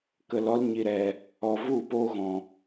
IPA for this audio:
k ə˧ l ɔ˦ l ɲ i˧ ɾ ɛ˧ | ɔ˧ v u˦˨ p oː˦ ɣ ɔ̃˧

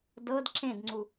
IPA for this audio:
d ɤ d ǁ ẽ d ŋ͡ǀ u

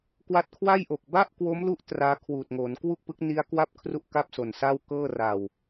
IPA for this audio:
k w a˦˥ t̚ kʰ w a˥˩ j ʔ o˨˩ k̚ b a˥˩ ʔ k w o˦˥ m l u˦˥ ʔ t r aː˦˥ kʰ w uː˨˩ t̚ ŋ o˩˦ n k w u˥˩ k̚ p ɯ˦˥ k̚ n i˦˥ a̯ k w a˥˩ p̚ kʰ r u˥˩ ʔ k a˥˩ p̚ s o˨˩ n s a˥˩ w k ɤː˥˩ r a˨˩ w

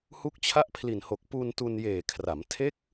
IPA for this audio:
h u˦˥ k̚ t͡ɕʰ a˥˩ ʔ pʰ l i˨˩ n h o˨˩ k̚ p u˧ n t u˧ n j eː˨˩ kʰ r a˩˦ m tʰ e˦˥ k̚

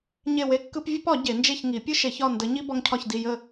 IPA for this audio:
ɲ e˥˨ w e˥˨ kː ɯ˥ p vʲ ə˥ p ɒ˨˩˦ ɟ e˨˩˦ n d͡ʒ e˥˨ ç ŋ i˨˩˦ pʲ ɯ˥ ʃ e˨˩˦ ç ɒ˥˨ n d ə˨˥ ɲ i˥ b ɒ˥ ŋ cʰ ɒ˥˨ ç d i˥˨ j ə˥˨

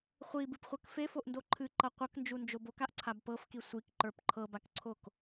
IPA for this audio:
χʷ i b ɨ p χʷ ɤ k f e f o ʔ n d o ǃʰ ɨ ǃ ʌ qʷ ʌ k n d͡ʒ u n d͡ʒ o b o k a ʔ ǀʰ a b p ɤ f k i sʷ i k ǃ ə˞ p ǃʰ ɤ b a k ǀʰ o k

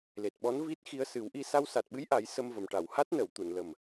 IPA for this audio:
l e˨˩ t̚ ɓ ɔ˧˥ n v i˦˥ t̚ x i˧ ə̯ s ɨ˨˩˦ w ʔ i˧ s a˧ w s a˨˩ t̚ ɓ ɨ˧˥ j ʔ a˨˩˦ j s ə˧ m v ə˨˩ m ʈ a˨˩˨ w h a˦˥ t̚ n ə˨˩˨ w t̪ u˨˩˨ n l ə˨˩ m

